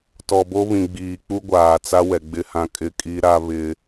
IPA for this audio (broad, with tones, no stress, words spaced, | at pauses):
tɔ˨bo˦βĩ˨ɡ͡biː˨ k͡pu˦ɡʷaː˨t͡sa˦wɛ˨ ɡ͡bɪ˦hã˦ kʼɪ˦˨kʼi˦ɾa˦ βɪ˦